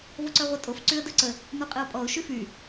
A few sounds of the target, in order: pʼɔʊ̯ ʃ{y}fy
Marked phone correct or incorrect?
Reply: correct